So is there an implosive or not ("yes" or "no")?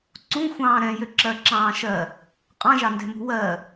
no